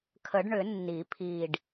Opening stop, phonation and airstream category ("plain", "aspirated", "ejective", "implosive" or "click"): aspirated